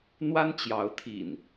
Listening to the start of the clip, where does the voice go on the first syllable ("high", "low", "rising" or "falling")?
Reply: high